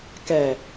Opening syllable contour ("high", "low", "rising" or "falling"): low